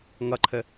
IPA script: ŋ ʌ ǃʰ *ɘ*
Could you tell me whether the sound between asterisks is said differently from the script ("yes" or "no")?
no